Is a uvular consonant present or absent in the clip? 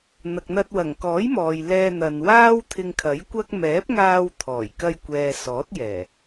absent